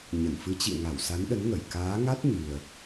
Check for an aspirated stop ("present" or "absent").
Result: absent